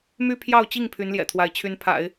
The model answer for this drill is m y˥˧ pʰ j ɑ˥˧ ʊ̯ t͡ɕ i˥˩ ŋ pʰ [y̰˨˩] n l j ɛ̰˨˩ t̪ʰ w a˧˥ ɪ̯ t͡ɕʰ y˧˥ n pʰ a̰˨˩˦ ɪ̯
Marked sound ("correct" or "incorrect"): incorrect